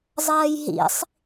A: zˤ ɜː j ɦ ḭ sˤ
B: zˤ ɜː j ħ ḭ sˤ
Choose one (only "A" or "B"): A